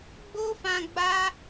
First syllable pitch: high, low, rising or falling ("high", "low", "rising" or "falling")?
high